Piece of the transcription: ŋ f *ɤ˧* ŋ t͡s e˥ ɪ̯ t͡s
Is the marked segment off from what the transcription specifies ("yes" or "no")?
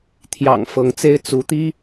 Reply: yes